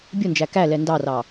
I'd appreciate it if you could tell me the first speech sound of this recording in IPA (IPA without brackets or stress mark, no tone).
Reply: bʲ